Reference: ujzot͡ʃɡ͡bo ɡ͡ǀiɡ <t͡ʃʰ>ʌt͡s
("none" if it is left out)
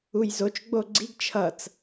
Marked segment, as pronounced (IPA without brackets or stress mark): t͡ʃʰ